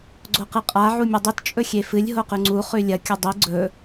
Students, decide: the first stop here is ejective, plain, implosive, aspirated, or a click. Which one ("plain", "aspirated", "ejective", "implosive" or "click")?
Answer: click